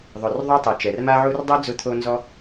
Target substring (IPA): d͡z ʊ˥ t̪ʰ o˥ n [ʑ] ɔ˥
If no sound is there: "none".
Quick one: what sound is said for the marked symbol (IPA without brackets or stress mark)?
z